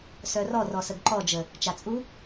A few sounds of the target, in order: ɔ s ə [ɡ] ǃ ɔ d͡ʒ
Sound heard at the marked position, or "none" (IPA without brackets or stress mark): ɡ